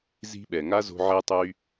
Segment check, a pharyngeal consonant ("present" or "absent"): present